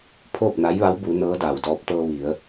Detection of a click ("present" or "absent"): absent